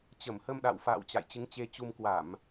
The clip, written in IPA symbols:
t͡ɕə˧˩mhə˧mɗa̰˧˨w fa̰ː˧˨w t͡ɕa̰˧˨jt͡ɕɨ˨˦ŋt͡ɕe˧t͡ɕu˧m kwa˧˩˨m

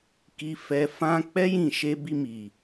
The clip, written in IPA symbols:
ki˧fɛ˧fã˦ k͡pɛ˦jĩ˦˨ʃe˧bi˧ mi˨

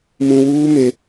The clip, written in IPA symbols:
mũ˨wuː˦me˨

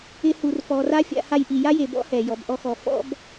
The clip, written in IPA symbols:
ɪ˦hu˨rfɔ˨ra˥ fʲa̰˦ha˥jʔi˨ ja˥je˨bɔ̰˥hɛ˩ jɔ˨bʔɔ˦xɔ˨ fɔ̰˥b

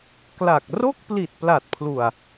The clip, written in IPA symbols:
kla˨˩k̚ ro˥˩k̚pli˨˩t̚ pla˨˩t̚pʰlu˨˩a̯

